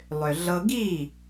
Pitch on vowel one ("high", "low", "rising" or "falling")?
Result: low